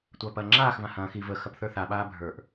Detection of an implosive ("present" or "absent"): present